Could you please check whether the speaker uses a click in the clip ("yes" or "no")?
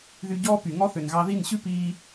no